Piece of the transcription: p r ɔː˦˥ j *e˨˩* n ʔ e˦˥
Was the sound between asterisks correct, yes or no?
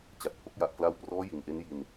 no